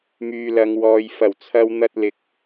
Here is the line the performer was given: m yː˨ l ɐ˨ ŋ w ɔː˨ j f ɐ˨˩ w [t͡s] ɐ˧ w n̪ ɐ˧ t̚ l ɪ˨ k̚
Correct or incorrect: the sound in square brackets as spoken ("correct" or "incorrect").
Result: incorrect